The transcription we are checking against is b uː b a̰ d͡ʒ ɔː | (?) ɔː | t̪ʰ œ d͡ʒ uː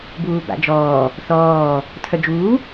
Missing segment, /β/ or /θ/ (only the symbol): θ